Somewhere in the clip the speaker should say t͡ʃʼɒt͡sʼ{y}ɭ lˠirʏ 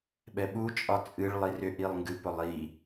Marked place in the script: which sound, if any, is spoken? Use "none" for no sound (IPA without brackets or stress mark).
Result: ɨ